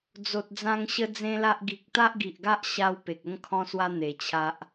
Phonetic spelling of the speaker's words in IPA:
d͡z o˨ t̚ d͡z ã˧ ŋ ɕ ə˦ d͡z ẽ˦ l a˦ ʔ ɡ i˨ k̚ t̪ a˦ ʔ ɡ i˨ ʔ ɡ a˦ ʔ ɕ a˦ w p e˨ k̚ ə˦ ŋ kʰ ɔ̃˦ s w a˦ n̪ e˨˩ t͡ɕʰ a˦ ʔ

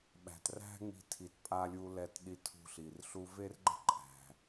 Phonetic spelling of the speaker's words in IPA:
ɓ æ̤˧ t r æ̤˥ ŋ͡m i̤˧ tʰ i˧ t pʼ a˧ lʲ u˧ l ɛ˧ t ɗ i˧ tʰ ṳ˧ ɬ i˩ r ɬ u˧ v e˥ r ɡ͡ǃ ə̤˥ ǃʼ æ̤˩

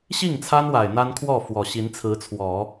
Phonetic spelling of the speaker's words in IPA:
ɕ i˥˩ ŋ t͡sʰ a˥ n w a˨˩ ɪ̯ n̪ a˥ n kʰ w ɔ˥˩ f w ɔ˨˩ ɕ i˧˥ n t͡sʰ ɹ̩˧˥ t͡sʰ w ɔ˨˩˦

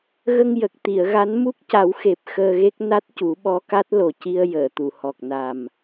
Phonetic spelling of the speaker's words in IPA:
ɣ ə˧ ŋ j ə˨˩ k̚ t̪ i˨˩˨ ə̯ ɣ a˧˥ n m u˦˥ k̚ c a˨˩˦ w x e˨˩ p̚ x əː˧ ɣ e˦˥ k̚ n a˦˥ t̚ c u˨˩˦ ɓ ɔ˧˥ k a˦˥ t̚ l o˨˩ c i˧ ə̯ j əː˨˩˨ t̪ u˨˩˨ h ɔ˨˩ k̚ n a˨˩ m

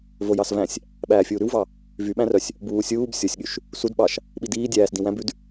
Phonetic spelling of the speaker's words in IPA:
v o j ɑ s v æ̃ sʲ | ɓ æː fʲ uː ɾ ʉ w v ɑ | v y ɓ æ̃ r œ sʲ | b uː sʲ uː b sʲ o sʲ ɠ y ʃ | s u d ɓ ɑ ʃ | ɓ i d iː dʲ æː s d ĩ w æ̃ b ʉ d

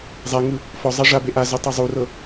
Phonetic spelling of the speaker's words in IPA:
zˤ ɛ ŋ ɯ | f ɔ zˤ a ʐ a b e ʔ a z u tˤ ɛ zˤ u r ɤ

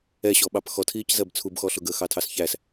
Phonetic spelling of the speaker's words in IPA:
ɛ ɕ ɔ ɓ ɑ p x ɔ tʰ iː c z ɜ b t͡sʰ u b x ɔ ɬ ʊ ɡ əː x ɑ tʰ ɑ s ç æ s

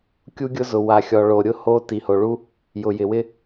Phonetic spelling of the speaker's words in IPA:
kʲ u˦ ɡʲ ʊ˦ z ʊ˨ w a˨ xʲ ɔ˨ ɭ o˨ ɾʲ ʊ˦ h o˦ t i˨ h o˨ ɭ u˦ | j ʊ˨ j ɪ˨ w ɪ˦

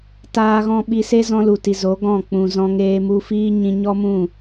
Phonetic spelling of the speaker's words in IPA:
t aː˦ ɣ ɔ̃˦ ɓ i˧ s e˦ z ɔ̃˧ l u˨ t i˨ z o˨˦ ɡ ɔ̃˦˨ k͡p ũ˨ z ɔ̃˧ ŋ eː˧ m u˧ f iː˦ ɲ ĩ˧ ɲ ɔ˦ m ũ˦˨

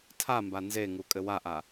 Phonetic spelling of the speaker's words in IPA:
tʰ a m b a n z e ŋ u kʼ ɘ w a ʔ a

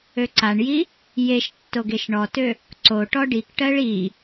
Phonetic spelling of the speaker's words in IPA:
ø ǀ a ɳ j i | j e ʃ tː o ɡ e ʃ ɳ ɔ t ø | ǀ o ʈ ɔ ɖ i k ʈ ɜ ɭ i

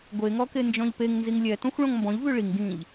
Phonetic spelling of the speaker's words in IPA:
ɡʷ e ŋ ɔ k e n d͡ʒ ɔ̃ ʎ p e ŋ n z i ŋ lʲ ɛ t ɔ̃ xʷ ɭ ɔ̃ ŋ m b ɔ̃ ʎ v ʉ ɭ i ŋ ɡ ĩ ʎ

